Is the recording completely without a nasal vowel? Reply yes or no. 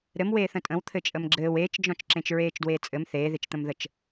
no